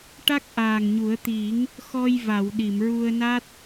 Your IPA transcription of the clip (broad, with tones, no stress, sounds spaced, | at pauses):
ʈ a˦˥ k̚ ʔ aː˨˩ ŋ ɲ u˨˩˦ ə̯ t̪ i˨˩˦ ŋ | x ɔ˧ j v a˨˩˨ w ɗ i˨˩˨ m ɹ u˧ ə̯ n a˦˥ t̚